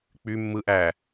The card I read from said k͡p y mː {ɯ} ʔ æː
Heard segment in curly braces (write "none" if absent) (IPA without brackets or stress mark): ɯ